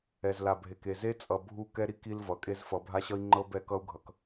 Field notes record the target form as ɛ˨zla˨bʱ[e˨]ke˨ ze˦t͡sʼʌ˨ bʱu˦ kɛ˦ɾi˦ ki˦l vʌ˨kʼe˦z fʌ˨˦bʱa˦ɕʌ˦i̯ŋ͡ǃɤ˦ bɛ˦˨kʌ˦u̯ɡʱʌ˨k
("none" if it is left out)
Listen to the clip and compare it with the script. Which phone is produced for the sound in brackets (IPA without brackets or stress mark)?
e˨